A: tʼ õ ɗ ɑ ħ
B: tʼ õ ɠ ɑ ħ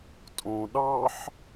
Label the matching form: A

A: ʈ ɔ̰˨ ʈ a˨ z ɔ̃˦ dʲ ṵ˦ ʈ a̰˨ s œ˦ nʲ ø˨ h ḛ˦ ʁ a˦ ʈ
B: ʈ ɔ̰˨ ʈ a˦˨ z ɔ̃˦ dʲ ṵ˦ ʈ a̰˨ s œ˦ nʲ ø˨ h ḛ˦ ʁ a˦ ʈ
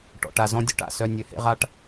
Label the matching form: A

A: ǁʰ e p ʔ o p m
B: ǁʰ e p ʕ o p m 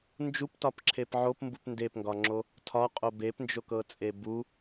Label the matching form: B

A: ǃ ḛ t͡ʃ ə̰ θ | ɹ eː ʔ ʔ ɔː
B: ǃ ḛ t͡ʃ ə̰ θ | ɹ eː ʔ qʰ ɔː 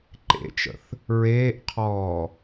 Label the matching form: B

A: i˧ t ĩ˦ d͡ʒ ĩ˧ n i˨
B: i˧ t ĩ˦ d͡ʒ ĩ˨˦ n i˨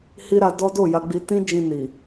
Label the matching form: A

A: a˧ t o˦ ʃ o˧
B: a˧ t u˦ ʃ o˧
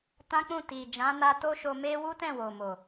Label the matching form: A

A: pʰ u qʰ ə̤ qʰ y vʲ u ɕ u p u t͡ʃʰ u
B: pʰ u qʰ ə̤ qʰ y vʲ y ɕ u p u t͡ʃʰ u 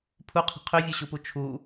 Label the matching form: A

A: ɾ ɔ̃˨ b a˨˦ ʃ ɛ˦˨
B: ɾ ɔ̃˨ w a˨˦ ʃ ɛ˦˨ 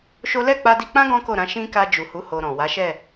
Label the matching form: B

